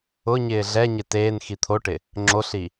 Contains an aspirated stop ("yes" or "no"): yes